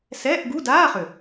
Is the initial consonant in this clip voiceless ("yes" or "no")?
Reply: yes